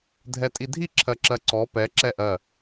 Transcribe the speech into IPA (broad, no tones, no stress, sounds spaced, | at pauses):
dʱ ɛ tʼ i dʱ i ǁʰ ɜ ǁ ɜ ǀ ɔ p ɛ ǁ ɛ ʔ ɜ